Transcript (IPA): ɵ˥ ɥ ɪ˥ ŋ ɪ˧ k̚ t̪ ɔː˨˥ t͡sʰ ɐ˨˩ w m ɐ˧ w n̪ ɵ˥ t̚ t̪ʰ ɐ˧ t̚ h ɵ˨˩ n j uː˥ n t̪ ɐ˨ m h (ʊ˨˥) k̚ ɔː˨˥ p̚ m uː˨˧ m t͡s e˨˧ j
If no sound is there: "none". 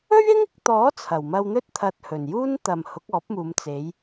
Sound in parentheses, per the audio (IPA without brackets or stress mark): ʊ˨˥